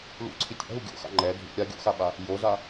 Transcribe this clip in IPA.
l ṵ ǀʰ i tʲ a̰ ɦ u ɡʲ o̰ x a̰ ŋ͡ǃ ɛ dʱ ṵ ɾʲ a ɡʲ o̰ x a ɓ a | j o z a

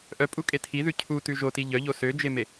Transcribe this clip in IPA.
ʔ œ pʼ u kʼ e tʰ i ð ʉ cʰ u t ʉ ʒ o t i ʎ œ ʎ o s ø d͡ʒ e m e

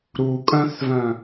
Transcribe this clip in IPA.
ɾ u kʼ œ̃ θ v œ̃

